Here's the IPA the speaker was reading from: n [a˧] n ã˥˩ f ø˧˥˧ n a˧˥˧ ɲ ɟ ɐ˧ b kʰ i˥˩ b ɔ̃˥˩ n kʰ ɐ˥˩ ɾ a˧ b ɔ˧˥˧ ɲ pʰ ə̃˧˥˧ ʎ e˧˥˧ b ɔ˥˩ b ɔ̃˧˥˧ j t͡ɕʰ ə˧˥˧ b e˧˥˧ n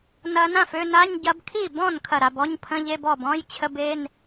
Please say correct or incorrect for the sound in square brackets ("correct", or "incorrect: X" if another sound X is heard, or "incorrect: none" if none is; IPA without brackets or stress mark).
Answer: incorrect: ɐ˧